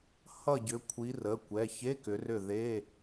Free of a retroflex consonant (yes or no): yes